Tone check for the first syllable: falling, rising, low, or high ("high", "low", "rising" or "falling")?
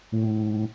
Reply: high